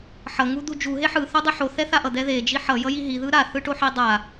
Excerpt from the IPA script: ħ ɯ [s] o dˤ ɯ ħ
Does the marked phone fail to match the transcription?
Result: yes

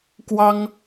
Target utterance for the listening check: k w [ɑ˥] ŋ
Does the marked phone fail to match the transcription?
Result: no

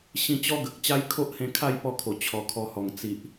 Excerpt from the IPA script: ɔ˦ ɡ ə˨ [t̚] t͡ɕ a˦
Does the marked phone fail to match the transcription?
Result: yes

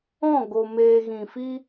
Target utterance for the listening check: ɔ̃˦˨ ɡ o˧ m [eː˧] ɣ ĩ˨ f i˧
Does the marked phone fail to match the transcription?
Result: no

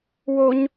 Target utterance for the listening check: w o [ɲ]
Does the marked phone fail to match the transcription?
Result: no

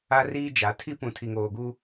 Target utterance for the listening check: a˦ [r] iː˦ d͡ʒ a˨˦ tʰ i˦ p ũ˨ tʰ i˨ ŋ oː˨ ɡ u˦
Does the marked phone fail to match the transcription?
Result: no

